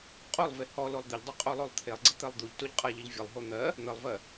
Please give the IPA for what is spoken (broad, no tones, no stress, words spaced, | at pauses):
qʼolˠve hɔ lolˠd̪ɘʎdˤo qʼolˠolˠt̪ʰelˠɡ͡ǀə t̪ɜlˠd̪uʎtoʎ qʼaʎəʎ vʲəlˠɦo n̪ɜ | n̪əlˠvɜ